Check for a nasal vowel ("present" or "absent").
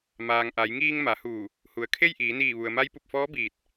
absent